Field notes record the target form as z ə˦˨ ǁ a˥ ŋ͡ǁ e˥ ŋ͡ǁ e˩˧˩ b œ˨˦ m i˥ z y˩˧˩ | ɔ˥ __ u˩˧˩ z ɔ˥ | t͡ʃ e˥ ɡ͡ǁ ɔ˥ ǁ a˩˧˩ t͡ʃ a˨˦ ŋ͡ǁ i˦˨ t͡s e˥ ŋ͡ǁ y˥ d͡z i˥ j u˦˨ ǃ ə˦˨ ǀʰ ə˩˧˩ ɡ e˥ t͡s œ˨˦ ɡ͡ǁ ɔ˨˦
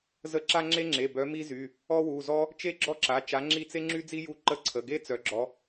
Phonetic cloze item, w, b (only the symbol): w